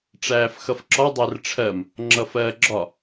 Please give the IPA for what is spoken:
ʈ͡ʂ æː f x ʌ f ǁ ɒ dˤ æ r ʈ͡ʂʰ ɜ m | ŋ͡ǁ ʌ f ɜː ɡ͡ǁ ɒ

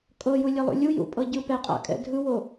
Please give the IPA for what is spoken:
kʼ ɤ j u lʲ ɛ lˠ ṵ lʲ u j ṵ pʼ ɤ ɟ ɯ p ɛ qʼ a̰ kʼ ɛ̰ dʱ ɯ w o

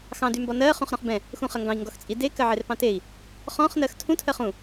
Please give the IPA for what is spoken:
x ɑ̃ d y m b ɔ n ɜ χ ũ χ ɾ ɔ̃ χ b ɛ̃ | x ũ χ ɜ ŋ ɡ ɑ̃ i̯ ŋ ɡ ɔ x t͡sʼ i d e k ɜ ʕ e r p ɑ̃ t e i̯ | χ ɔ̃ χ n ɜ x tʰ ũ tʰ ɜ χ ũ

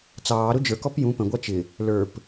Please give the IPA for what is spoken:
t͡s ɑː ɾ ʊ d͡ʒ ə˞ k ɔ p j ũ p ə̃ ɡʷ ɑ t͡ʃ ɪ | l ə˞ p

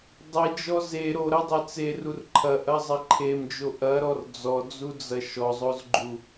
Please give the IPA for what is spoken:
dˤ e d͡ʒ ɔ z e ɾ o ɾ ɐ dˤ e t͡s e r u r ǃʰ ɐ ʔ ɐ zˤ ɐ ǃʰ e m d͡ʒ o ʔ ɐ ɾ ɔ r d͡z ɔ d͡z u d͡z ɐ ʃ ɔ zˤ o z ɡ͡ǃ u

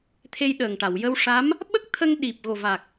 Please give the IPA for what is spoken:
t̪ʰ e˧ j ɗ əː˨˩ ŋ ʈ a˨˩˨ w j ə˧ w ʂ a˧˥ m | ɓ ə˦˥ k̚ t̪ʰ ə˧ ŋ ɗ i˨˩ p̚ ɣ o˨˩ v a˨˩ k̚

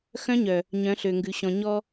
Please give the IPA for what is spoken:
x œ̃˦ ɲ œ˨ | ɲ œ̃˨˦ ɬ ø˨ ŋ ɡ ʉ˨ ɕ ɔ̃˨ ɲ ɔ˦

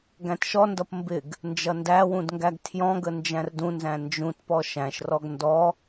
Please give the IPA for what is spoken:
ɡ æ̃ t ʃ ɔ n d ʌ p m b ɪ ɡ | n d͡ʒ ʌ n d æ w ũ d ŋ ɡ æ ɡ tʰ j ɔ̃ ɡ ə n d͡ʒ æ̃ r d ũ n z æ̃ n d͡ʒ ũ t p ɔ ʃ æ̃ ʃ r ɔ ɡ n d ɔ

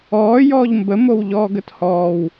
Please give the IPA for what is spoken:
ɔː j ɔː ʎ m b ə m o w ʎ ɔː ɡ ə t h ɔː w

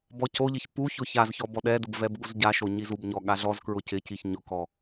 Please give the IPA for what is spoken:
b ɔ c o ʎ ɪ ç p u ç ʊ ç a z ç ɔ b ɔ ɗ ɛ d ʊ b v ɛ b ɠ u z ɟ a ʃ o ɲ i z u b ɲ ɔ ɠ a ɮ ɔ z k ɹ ʊ c ɪ c i ç ɲ ʊ k ɔ

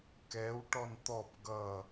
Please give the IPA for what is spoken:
k ɛ w ʈ ɔ n t̪ ɔ p ɡ ʌ

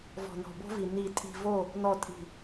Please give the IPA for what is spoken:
v ɔ̤˨ n ɔ̤˨ b o̤˦ v i˨ n i˨ tʼ i̤˨ v o˦˨ | n ɔ˨ tʼ i̤˨

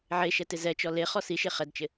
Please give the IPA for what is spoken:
ʕ e ʃ ɛ t ɪ z ɛ t͡ʃ ɔ l e χ ɔ s i ʃ e χ ɛ d t͡ʃ ɪ

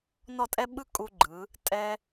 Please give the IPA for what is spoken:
n ɔ˥˧ tʼ ɛ˥ ɓ ɯ˥ kʼ u˧ ɡ͡ǃ ɯ˩˧ | tʼ ɛ˧

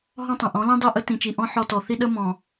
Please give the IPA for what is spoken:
ɦ ɔ̃˦ tˤ ə̃˨ ʔ ɔ̃˨˦ l ĩ˦ dˤ i˦˨ ʔ ə˦ t ĩ˨ t͡ʃ i˨ ʔ ɔ̃˦ ħ ɔ˦ t ɔ˨ θ i˦ ɗ ə˦ m ɔ̃˨

